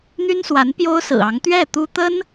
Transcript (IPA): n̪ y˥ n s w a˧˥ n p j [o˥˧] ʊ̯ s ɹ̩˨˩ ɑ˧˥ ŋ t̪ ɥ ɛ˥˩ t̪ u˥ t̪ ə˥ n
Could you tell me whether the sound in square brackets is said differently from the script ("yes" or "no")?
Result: yes